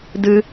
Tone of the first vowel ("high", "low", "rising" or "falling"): high